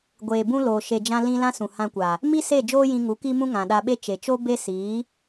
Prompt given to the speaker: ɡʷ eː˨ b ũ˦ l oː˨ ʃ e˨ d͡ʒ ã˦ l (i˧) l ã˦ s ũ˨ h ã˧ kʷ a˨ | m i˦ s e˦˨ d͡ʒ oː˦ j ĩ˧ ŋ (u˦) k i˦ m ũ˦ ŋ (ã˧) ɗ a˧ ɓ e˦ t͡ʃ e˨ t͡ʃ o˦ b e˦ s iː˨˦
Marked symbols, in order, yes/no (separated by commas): no, no, no